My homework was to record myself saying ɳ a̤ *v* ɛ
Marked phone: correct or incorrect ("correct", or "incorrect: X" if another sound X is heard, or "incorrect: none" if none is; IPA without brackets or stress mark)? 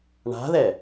incorrect: ð